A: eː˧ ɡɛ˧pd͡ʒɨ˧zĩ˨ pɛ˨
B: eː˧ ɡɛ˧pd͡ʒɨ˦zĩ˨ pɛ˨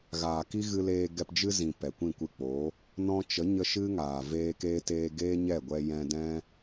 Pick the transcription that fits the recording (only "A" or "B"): B